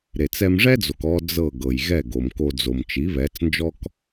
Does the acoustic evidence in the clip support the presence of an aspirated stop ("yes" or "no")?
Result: no